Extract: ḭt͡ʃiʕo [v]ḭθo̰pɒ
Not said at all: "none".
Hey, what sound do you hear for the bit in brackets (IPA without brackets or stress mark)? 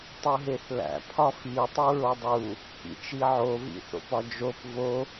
v